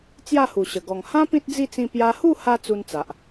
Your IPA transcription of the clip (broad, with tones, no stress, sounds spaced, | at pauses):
t͡s j a˥˧ h u˨˩ ɕ ə˨˩ ɡ ɔ˨˩ ŋ h ã˦ p ĩ˦ t̚ d͡z i˥˧ t͡s ĩ˧ p j a˧ h u˥˧ h a˧ t͡s u˦ n t͡s a˨ ʔ